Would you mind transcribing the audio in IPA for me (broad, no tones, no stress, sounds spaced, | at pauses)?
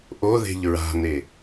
ʔ o ð e̤ ʎ ɹ a̤ n e